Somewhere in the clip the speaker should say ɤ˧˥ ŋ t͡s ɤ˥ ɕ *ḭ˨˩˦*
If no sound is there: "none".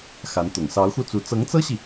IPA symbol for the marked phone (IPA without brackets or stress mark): i˨